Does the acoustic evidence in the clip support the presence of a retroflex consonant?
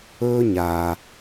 no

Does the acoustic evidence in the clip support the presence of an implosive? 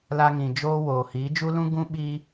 yes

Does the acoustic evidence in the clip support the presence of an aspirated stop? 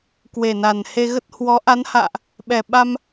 no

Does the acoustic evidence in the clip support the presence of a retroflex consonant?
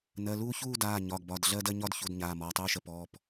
no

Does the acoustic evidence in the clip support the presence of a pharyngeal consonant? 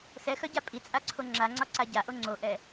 no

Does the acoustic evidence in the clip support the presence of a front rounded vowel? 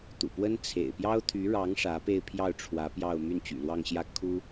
yes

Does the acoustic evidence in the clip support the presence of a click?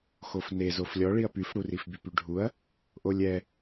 no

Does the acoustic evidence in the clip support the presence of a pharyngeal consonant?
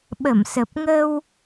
no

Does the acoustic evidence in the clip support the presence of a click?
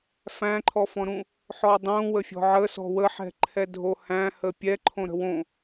yes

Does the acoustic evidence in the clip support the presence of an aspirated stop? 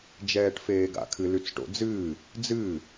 yes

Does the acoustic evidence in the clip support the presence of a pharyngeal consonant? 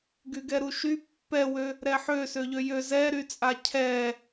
yes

